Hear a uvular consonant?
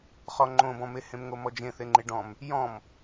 yes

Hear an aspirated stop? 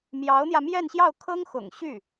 yes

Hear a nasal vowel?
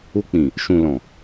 yes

